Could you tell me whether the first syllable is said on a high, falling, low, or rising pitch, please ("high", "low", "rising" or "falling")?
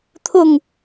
falling